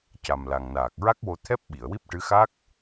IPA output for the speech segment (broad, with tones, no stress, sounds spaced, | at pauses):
c a˨˩ m l a˨˩ ŋ n aː˨˩ k̚ ɹ a˦˥ k̚ w o˧ t̪ʰ ɛ˦˥ p̚ ɓ i˨˩˨ ə̯ w i˦˥ p̚ ʈ ɨ˧˥ x a˦˥ k̚